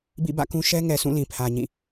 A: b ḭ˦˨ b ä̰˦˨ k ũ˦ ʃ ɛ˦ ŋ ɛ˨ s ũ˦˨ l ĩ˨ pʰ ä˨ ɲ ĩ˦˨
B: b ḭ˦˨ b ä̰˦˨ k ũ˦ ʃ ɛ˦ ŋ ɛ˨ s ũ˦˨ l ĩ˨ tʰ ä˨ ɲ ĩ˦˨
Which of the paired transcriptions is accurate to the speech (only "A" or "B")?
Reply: A